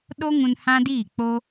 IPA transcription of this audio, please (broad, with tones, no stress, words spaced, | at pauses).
ɗo˦ŋũ˧n hã˦diː˦˨k͡po˦